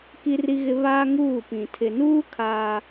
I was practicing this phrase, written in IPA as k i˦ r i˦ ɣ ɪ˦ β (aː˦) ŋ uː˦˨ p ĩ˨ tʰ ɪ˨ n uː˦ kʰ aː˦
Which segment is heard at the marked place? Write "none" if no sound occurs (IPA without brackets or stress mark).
aː˦